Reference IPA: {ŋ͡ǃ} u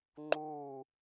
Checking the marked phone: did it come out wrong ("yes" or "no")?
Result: no